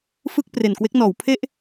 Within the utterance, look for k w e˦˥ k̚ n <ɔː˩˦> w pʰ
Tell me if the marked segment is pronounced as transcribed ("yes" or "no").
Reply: yes